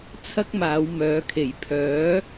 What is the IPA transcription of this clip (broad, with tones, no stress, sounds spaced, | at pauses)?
t͡sʰ ɐ˥ k̚ m aː˨˧ w m œː˨˧ kʰ e˨˩ j pʰ œː˨˥